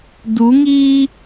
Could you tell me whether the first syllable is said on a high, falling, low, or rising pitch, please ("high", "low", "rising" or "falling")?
rising